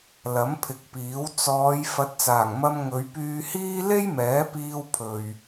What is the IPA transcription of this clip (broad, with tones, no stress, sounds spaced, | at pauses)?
l ɐ˨˥ m pʰ ɪ˨˥ k̚ p iː˨˥ w t͡s ɔː˨˧ j f ɐ˨˥ t̚ t͡s aː˨˩ ŋ m ɐ˧ m ŋ ɵ˨˧ ɥ p yː˧ h iː˥ l e˥ j m ɛː˨˥ p iː˧ w pʰ ɵ˨ ɥ